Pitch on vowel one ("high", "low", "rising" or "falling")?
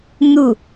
falling